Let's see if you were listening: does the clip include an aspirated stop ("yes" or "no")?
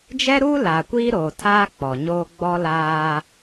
yes